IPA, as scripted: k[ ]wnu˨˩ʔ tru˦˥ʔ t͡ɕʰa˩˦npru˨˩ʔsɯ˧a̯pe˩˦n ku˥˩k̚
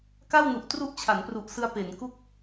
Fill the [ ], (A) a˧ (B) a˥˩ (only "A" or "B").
B